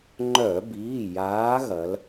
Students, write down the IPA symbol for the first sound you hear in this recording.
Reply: ŋ͡ǃ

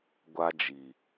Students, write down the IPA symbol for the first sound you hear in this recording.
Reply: ɡʷ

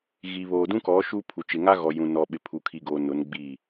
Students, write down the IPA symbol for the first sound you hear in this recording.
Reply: ɣ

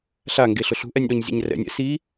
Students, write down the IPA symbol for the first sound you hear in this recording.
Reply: ɬ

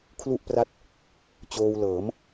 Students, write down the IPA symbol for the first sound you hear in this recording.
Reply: kʰ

